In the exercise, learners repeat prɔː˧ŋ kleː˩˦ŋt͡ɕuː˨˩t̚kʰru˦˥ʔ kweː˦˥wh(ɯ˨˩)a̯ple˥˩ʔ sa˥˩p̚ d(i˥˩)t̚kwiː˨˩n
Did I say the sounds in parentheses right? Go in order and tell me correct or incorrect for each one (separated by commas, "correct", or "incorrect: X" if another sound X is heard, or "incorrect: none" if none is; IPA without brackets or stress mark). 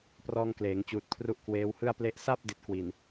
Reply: incorrect: ɯ˥˩, incorrect: i˦˥